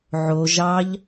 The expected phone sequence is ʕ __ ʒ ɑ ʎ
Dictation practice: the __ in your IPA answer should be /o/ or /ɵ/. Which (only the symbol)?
o